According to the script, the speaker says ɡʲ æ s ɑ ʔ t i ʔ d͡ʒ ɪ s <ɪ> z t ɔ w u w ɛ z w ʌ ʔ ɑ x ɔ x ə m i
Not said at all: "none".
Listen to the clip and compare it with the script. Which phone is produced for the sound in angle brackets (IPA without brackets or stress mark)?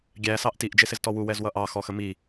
ɪ